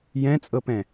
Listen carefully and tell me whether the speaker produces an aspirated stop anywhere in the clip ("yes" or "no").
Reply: no